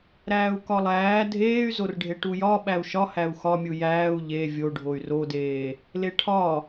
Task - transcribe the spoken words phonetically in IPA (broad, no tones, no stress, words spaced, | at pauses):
ɾæːu̯kɒlˠæː dʱeːy̯zorɖʱe ʈujɒ ɓæu̯ʃɒhæu̯ xɒmʲu jæːu̯ ʎe vʲoɖʱoy̯ rodeː | leʈʰɒ